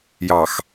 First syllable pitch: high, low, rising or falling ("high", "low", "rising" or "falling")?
low